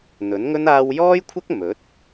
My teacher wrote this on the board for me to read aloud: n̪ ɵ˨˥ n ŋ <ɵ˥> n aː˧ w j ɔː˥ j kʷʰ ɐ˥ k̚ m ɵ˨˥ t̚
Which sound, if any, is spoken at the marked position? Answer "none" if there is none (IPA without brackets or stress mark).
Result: ɵ˥